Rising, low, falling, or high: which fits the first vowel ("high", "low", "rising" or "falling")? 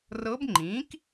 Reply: rising